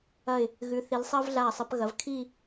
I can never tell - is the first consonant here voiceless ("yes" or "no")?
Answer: no